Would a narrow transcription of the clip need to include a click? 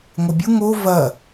no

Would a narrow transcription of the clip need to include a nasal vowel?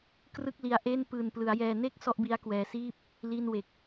no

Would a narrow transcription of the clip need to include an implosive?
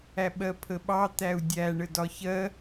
yes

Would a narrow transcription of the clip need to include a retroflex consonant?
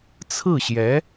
no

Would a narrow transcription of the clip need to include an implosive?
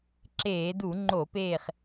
no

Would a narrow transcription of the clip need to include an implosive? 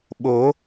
yes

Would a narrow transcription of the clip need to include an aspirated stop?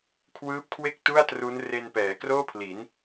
yes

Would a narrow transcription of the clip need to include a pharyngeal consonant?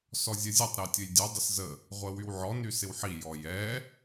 yes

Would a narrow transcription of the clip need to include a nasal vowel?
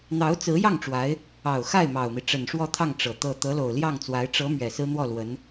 no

